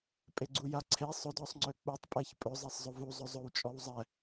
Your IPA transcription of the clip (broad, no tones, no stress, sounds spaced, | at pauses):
pʼ e ɡ͡ǀ u j a ǀʰ e sˤ ʊ d ɔ sˤ ŋ͡ǀ ø k͡p u tˤ pʼ ɛ ç pʼ ɵ zˤ ɛ sˤ zˤ ʊ v u zˤ ɵ zˤ ɵ w t͡ʃʼ ɔ w zˤ ɛ